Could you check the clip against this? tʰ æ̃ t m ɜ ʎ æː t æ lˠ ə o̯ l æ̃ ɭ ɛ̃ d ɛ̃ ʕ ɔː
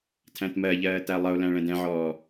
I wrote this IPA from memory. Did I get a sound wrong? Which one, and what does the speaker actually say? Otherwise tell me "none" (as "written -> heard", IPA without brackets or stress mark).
æː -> ɜː